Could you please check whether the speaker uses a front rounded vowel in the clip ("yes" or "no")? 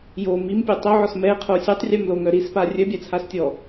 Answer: yes